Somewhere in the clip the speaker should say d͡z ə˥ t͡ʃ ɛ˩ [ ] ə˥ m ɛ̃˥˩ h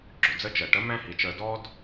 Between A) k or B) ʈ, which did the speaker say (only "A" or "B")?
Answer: B